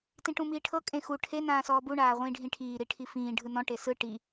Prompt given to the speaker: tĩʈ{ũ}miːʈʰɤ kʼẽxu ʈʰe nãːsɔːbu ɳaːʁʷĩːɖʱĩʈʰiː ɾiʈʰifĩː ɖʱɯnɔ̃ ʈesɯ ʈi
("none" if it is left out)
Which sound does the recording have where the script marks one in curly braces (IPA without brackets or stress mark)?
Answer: ũ